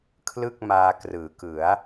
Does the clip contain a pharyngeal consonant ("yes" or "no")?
no